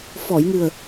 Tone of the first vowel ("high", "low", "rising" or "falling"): low